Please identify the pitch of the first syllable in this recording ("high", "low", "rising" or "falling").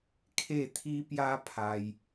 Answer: falling